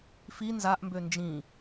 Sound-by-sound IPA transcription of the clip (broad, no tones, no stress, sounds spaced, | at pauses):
f i n z a ʔ m b ø n d͡ʒ ĩ